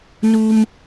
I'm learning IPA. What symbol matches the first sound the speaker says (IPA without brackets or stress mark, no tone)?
n